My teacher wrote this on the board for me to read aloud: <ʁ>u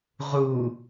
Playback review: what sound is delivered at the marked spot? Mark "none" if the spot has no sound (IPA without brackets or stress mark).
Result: ʁ